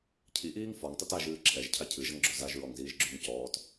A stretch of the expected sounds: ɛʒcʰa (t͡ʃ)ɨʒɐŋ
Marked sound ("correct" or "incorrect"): incorrect